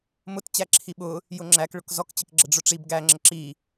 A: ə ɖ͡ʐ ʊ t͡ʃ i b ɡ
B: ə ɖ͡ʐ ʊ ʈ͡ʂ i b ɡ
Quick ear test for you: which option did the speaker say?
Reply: B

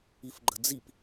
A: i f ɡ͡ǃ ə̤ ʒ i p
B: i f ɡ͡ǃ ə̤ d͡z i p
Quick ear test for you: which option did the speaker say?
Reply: B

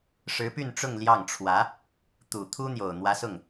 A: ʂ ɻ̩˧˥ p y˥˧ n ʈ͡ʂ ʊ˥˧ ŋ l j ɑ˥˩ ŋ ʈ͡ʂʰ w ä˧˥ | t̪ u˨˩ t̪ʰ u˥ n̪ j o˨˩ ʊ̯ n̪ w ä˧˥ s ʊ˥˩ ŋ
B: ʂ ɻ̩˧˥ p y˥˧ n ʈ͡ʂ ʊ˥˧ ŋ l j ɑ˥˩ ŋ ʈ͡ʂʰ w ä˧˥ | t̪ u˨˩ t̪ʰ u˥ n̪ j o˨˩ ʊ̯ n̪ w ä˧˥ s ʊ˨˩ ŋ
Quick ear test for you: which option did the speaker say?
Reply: A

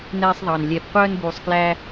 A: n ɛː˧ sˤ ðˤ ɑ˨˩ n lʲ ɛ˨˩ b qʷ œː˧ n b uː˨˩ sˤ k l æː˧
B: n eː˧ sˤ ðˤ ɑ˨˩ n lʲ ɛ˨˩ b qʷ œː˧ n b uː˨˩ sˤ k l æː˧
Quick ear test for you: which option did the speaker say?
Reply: A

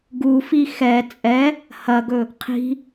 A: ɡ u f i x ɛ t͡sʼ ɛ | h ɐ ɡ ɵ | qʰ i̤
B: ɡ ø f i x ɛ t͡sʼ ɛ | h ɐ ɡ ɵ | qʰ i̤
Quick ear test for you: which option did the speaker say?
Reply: A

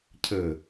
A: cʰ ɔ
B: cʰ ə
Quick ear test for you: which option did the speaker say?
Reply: B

